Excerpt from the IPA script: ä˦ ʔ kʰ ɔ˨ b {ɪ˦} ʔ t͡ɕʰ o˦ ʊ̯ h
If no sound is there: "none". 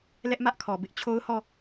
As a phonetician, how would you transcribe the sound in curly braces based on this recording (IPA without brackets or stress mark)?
ɪ˦